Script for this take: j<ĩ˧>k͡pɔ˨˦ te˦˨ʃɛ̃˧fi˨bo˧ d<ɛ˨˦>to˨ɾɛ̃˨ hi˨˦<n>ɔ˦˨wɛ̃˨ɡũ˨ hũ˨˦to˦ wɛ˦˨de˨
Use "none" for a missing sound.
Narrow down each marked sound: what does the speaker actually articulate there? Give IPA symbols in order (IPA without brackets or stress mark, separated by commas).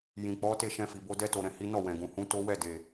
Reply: ĩ˨, ɛ˧, n